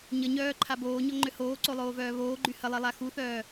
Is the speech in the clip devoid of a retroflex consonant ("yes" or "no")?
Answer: yes